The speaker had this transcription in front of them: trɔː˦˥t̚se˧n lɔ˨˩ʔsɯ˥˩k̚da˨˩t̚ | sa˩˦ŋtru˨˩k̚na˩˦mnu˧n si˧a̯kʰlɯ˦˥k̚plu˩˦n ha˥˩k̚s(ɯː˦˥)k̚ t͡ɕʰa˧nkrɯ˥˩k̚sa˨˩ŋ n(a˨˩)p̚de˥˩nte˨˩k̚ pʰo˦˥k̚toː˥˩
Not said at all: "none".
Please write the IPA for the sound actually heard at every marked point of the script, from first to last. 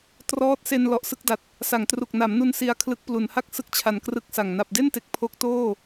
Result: ɯ˦˥, a˨˩

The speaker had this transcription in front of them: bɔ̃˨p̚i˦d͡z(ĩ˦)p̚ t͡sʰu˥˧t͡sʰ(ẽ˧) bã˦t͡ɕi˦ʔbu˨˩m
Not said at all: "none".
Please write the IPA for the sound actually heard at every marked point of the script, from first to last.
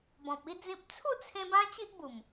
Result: ĩ˦, ẽ˧

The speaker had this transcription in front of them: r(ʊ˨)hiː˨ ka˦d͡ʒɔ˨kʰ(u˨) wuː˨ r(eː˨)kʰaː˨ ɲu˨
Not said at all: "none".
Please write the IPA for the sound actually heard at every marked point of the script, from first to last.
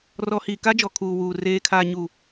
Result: ɔ˨, uː˨, eː˨

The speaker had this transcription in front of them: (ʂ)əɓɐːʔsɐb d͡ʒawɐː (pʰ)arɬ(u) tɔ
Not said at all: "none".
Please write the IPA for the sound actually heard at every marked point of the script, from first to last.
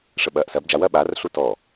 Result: ʂ, ɓ, u

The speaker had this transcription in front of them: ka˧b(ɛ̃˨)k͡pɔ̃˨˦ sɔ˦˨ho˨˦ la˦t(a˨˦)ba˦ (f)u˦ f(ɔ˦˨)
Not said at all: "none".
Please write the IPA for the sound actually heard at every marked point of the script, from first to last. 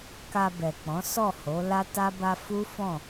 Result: ɛ˨, a˦, f, ɔ̃˦˨

